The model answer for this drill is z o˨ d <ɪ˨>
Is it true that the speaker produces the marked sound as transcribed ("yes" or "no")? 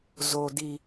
no